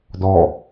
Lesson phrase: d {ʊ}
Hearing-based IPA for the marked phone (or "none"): ɔ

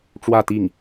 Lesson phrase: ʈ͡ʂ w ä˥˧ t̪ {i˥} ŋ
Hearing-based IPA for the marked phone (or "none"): i˥˩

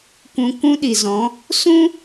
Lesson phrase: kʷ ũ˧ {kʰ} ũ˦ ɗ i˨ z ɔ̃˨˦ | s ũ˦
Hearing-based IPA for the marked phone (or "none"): k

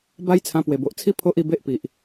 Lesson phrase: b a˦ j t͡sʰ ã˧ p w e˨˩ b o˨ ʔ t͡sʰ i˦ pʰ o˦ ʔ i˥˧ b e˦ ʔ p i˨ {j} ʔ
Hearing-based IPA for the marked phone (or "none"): none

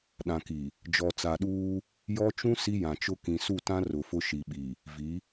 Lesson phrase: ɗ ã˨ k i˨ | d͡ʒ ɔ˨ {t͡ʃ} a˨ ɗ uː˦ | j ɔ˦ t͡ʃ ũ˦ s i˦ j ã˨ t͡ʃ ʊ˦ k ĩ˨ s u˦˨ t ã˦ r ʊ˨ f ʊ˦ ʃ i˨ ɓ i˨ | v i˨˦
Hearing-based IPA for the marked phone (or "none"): t͡s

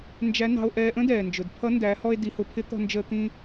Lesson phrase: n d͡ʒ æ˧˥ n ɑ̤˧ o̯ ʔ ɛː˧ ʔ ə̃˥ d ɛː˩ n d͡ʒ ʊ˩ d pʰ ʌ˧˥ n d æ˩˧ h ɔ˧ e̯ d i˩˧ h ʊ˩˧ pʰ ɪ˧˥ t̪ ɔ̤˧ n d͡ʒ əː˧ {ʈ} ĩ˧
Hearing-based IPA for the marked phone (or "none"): t̪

